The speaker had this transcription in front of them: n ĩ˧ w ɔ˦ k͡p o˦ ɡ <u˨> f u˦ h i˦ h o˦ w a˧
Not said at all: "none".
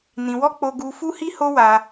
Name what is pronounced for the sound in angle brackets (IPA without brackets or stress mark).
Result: u˦